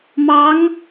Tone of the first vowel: rising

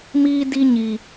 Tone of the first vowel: high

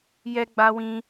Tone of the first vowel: high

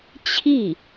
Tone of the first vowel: falling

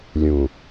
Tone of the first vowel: low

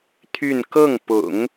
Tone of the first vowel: falling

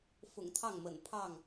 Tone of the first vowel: low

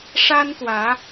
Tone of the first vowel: high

